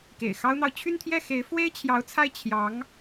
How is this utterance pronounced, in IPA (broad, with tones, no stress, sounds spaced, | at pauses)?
k ḛ˨˩ ɪ̯ x ɑ˥ ʊ̯ n̪ ɑ˨ ʊ̯ t͡ɕʰ y˥˧ n t̪ʰ j ɛ˥˩ x e˧˥ ɪ̯ f w e˥ ɪ̯ t͡ɕʰ j ɑ˧˥ ʊ̯ t͡sʰ a˥˩ ɪ̯ t͡ɕʰ j ɑ˧˥ ŋ